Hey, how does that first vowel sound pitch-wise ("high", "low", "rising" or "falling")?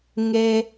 low